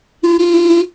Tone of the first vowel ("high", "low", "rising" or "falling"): high